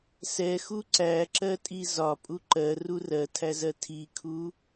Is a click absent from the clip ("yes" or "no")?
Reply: no